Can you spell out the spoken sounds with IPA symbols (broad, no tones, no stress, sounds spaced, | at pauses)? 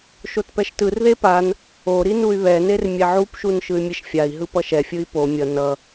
ʃ o t p ɛ ʃ t ɯ r ð e p a n | o ɾ i n u y̯ β ɛ n e r mʲ ɛ ʕ u p ʃ u n ʃ ɯ y̯ mʲ e ʃ fʲ a i̯ ɦ ɯ p ʌ ʃ ɛ fʲ ɯ i̯ p o mʲ ʌ n ʌ